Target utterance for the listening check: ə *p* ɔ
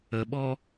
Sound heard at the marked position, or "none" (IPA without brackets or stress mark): ɓ